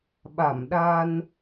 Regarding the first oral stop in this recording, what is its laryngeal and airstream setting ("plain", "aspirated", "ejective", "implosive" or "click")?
implosive